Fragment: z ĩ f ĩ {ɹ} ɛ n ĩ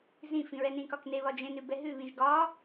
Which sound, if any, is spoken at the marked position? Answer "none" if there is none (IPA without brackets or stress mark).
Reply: ɹ